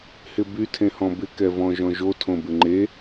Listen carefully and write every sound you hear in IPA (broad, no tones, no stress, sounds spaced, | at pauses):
h ɪ b y tʰ ẽ h ɔ̃ b ɪ k ɛ v ɔ̃ ʒ ɔ̃ ʒ o tʰ õ b ɪ ŋ͡ǃ e